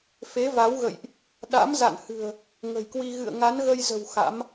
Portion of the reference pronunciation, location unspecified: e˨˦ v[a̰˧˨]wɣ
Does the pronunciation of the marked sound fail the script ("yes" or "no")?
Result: yes